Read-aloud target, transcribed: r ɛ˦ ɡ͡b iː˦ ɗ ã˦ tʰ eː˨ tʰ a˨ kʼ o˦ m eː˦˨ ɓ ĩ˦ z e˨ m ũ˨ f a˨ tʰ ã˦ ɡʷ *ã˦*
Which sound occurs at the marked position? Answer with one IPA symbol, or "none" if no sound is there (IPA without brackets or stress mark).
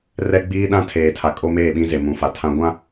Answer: ã˦